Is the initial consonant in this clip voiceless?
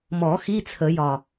no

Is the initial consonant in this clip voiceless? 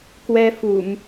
yes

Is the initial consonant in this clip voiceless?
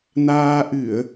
no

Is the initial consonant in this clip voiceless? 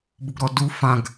no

